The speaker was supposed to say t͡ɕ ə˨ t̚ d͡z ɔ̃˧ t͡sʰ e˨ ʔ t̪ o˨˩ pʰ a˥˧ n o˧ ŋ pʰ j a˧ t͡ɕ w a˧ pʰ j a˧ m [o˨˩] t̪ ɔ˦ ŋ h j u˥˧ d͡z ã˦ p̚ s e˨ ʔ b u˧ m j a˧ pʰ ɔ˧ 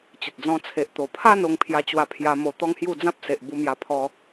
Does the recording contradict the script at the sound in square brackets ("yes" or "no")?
yes